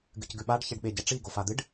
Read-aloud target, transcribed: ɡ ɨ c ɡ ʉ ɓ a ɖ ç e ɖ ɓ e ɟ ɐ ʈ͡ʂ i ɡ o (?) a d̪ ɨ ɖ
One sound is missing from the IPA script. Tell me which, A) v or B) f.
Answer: B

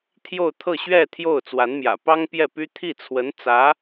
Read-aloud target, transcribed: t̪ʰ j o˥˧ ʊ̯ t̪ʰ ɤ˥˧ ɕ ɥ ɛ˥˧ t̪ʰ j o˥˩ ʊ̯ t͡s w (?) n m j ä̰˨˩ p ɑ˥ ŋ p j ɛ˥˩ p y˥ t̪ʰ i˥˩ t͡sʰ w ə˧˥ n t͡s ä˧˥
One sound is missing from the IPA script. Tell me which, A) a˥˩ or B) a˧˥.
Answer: B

